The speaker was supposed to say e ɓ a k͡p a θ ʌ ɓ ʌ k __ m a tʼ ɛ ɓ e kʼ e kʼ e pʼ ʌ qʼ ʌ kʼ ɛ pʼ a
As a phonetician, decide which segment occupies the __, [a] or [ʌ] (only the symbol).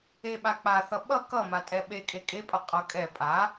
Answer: ʌ